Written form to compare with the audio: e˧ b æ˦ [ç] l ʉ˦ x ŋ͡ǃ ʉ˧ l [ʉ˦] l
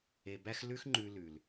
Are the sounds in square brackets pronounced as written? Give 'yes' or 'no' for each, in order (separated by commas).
no, no